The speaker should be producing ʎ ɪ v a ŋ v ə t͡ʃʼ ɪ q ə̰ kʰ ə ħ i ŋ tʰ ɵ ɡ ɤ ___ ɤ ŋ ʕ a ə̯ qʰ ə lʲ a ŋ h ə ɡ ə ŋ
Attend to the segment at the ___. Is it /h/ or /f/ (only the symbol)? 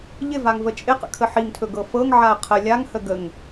f